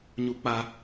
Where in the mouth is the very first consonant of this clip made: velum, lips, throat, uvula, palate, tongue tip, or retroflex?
palate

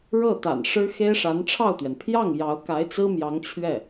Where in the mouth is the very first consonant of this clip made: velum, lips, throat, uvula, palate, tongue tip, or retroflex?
retroflex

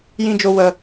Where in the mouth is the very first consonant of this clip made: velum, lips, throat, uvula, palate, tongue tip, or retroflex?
palate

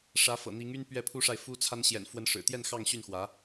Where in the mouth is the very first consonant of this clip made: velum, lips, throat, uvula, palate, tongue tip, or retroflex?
retroflex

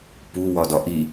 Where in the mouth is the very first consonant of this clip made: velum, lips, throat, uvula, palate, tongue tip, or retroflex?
lips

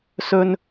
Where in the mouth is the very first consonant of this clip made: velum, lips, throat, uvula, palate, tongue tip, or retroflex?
tongue tip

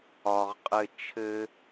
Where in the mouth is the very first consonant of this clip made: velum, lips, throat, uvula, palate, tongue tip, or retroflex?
uvula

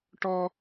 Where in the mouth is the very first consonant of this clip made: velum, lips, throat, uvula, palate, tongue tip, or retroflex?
retroflex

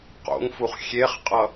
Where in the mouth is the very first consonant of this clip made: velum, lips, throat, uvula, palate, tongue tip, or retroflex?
uvula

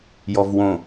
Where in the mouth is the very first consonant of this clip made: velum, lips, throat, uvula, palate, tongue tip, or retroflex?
palate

